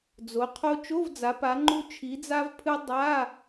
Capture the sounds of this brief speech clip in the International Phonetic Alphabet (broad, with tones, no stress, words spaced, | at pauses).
d͡zo˩˧qʰo˧ t͡ʃo˧˥˧vd͡za˩˧pa˩˧ŋ͡ǃu˧ t͡ʃʰi˩˧d͡za˧vpʰɨ˧ dˤa˧˥˧